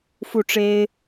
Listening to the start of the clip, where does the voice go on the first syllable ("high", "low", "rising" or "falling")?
falling